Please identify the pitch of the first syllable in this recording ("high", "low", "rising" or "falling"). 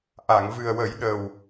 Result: low